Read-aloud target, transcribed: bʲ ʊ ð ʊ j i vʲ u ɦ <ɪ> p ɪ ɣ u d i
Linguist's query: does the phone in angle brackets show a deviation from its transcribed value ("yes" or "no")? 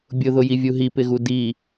yes